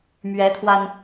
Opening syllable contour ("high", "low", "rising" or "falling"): rising